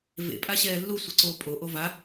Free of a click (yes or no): no